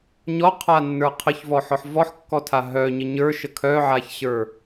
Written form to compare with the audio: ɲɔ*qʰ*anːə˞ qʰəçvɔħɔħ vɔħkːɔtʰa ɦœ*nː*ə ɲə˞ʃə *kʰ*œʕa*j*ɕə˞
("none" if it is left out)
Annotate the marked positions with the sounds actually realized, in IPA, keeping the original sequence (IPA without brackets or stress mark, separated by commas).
qʰ, ɲ, kʰ, ç